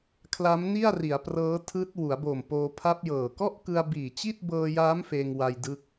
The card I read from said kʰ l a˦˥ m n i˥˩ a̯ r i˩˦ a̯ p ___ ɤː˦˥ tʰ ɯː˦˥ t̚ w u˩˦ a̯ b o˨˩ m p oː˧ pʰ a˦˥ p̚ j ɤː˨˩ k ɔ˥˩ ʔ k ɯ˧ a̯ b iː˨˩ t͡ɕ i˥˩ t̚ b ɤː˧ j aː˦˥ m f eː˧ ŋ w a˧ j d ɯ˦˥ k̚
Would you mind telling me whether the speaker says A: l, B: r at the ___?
B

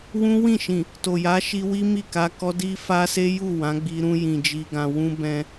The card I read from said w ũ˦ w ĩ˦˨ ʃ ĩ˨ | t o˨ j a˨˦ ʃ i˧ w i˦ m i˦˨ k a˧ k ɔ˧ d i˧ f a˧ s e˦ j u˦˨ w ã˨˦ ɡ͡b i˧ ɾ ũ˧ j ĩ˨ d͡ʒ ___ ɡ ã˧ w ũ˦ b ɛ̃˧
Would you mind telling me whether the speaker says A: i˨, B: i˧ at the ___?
B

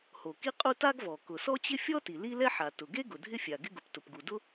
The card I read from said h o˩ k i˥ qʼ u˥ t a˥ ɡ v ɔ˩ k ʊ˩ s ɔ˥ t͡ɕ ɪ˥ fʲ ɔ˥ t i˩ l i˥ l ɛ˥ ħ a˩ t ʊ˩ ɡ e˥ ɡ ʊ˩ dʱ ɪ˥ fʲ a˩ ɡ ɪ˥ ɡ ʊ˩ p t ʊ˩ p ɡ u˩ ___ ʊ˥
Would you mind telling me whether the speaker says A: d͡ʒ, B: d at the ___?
B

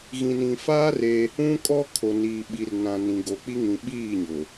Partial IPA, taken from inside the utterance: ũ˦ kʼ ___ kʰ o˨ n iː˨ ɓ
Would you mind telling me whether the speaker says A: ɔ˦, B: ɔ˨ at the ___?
A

